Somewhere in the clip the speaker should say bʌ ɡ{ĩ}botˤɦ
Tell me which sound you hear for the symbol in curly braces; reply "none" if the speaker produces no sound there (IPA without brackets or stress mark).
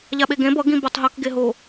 ĩ